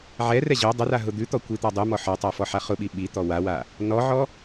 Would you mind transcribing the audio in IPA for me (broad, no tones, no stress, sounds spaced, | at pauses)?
ʕ ɛ r ɛ ʑ o dˤ ʊ r a ɦ ʊ d̪ ʉ t̪ ɔ kʷ i t̪ a dˤ y m ɔ ħ ɔ tˤ a f ɔ ħ a χ ʊ ɓ i ɓ i t̪ ɔ w a w a | n ɔ ʕ ɔ